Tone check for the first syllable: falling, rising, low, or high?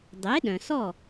rising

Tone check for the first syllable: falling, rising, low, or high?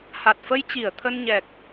low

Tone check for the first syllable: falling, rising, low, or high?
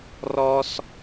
high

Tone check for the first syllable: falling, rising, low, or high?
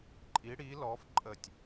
rising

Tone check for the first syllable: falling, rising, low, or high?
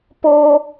high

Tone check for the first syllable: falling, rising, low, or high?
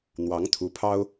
rising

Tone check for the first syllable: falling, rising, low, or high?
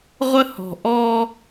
high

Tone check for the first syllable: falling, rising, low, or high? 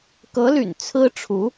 rising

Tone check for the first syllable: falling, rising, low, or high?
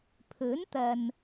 rising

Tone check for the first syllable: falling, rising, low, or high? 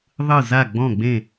falling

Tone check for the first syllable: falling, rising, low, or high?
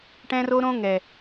high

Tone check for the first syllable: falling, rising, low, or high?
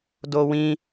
high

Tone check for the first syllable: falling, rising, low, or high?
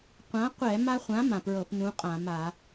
rising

